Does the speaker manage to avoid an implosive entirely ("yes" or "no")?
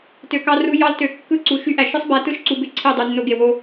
yes